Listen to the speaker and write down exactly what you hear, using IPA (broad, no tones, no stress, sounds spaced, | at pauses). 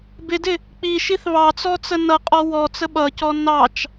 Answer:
b ɪ d ɪ | k͡p i ʃ i θ β ɑ t͡s ɔ t͡s ə n ʌ qʼ ɔ w ɔ t͡s ə ɓ ʌ c ɔ n ɑ t͡ʃ